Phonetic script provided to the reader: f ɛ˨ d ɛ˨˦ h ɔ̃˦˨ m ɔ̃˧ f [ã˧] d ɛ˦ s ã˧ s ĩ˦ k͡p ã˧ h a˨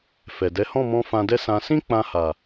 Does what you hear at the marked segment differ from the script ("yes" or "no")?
no